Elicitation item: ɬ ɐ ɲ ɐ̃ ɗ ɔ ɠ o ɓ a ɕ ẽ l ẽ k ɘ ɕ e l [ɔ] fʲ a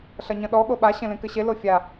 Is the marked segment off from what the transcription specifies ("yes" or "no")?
yes